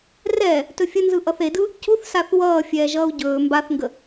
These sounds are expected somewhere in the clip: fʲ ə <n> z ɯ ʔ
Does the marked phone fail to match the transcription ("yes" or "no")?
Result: no